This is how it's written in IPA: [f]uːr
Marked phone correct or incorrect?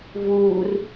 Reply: incorrect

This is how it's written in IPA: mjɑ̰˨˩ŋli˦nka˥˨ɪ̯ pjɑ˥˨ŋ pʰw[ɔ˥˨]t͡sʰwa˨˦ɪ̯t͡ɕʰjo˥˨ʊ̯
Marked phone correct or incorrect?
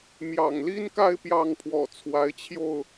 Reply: incorrect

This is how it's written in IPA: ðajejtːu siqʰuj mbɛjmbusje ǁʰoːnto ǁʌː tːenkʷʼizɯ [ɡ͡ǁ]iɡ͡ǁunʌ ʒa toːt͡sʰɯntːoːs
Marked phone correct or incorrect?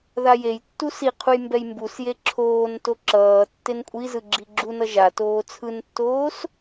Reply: correct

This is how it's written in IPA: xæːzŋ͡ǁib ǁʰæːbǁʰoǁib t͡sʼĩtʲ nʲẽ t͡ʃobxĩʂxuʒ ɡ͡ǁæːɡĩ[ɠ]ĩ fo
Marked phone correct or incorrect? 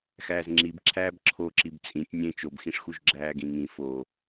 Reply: incorrect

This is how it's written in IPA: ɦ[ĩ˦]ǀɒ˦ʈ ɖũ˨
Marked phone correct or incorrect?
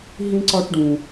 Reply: correct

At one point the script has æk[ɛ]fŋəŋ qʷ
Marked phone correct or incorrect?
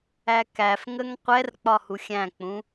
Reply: incorrect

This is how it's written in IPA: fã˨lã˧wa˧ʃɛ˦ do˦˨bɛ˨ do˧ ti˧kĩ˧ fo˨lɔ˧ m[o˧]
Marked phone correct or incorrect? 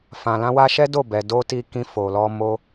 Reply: correct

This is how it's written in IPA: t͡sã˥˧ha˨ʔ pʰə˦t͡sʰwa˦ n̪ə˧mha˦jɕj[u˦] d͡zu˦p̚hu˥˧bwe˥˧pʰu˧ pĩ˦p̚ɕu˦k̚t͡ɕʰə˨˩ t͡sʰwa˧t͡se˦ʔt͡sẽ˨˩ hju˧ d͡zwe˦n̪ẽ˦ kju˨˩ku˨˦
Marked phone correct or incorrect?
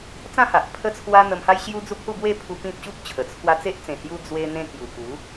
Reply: correct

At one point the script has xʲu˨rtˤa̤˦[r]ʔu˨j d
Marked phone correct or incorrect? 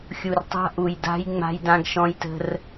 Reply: incorrect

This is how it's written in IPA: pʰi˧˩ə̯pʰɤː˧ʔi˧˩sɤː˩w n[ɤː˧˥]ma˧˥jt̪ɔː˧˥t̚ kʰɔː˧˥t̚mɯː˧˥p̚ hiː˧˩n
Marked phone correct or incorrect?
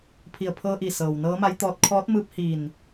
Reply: correct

